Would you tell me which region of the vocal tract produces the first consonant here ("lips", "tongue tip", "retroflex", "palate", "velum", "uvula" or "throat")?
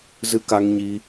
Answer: tongue tip